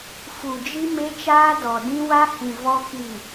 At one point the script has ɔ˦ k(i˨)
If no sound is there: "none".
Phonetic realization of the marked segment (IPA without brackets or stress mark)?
i˨